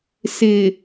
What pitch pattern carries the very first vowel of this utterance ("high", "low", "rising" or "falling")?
low